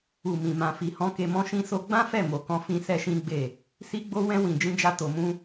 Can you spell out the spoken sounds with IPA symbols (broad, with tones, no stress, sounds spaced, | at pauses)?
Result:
u˨ m ĩ˨ m ã˨ f i˨ h ɔ̃˧ k e˧ m ɔ̃˦ ʃ ĩ˦ s o˦ ɡ͡b ã˦ f ɛ˦˨ m o˨ k ɔ̃˧ f ĩ˧ s ɛ˦ ʃ ĩ˦ ɡ͡b e˦˨ | s i˦ ɡ͡b o˦ w ɛ̃˦ w ĩ˧ d͡ʒ ĩ˦ d͡ʒ a˦ t o˧ m ũ˦